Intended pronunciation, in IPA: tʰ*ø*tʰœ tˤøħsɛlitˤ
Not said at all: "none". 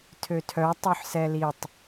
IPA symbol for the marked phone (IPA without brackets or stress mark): ø